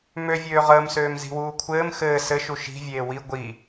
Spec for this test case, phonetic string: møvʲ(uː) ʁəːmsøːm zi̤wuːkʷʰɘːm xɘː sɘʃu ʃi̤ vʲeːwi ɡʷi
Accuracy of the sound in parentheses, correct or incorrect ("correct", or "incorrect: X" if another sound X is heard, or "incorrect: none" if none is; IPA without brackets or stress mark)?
incorrect: øː